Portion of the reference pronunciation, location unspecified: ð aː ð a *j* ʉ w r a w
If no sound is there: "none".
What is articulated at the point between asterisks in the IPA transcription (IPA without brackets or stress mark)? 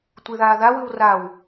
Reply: w